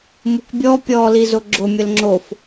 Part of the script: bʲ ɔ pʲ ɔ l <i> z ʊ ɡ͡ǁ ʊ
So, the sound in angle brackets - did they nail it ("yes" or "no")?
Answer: yes